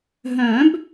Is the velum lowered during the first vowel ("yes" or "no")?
yes